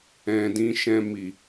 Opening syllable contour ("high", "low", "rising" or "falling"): low